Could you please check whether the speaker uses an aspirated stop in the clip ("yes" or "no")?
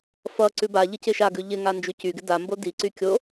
no